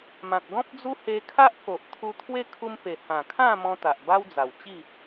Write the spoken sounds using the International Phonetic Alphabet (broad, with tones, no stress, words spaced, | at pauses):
mã˨k̚ɡɔ̃˦p̚d͡zu˦he˧ kʰa˦ʔko˨ʔ t̪ʰu˧t̪ʰwe˦ kʰu˧m pe˨˩ hã˨˩kʰã˥˧mɔ̃˧ t̪a˨ʔba˦wd͡za˨˩wt͡ɕi˥˧